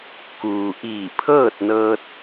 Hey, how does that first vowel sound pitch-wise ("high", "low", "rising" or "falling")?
low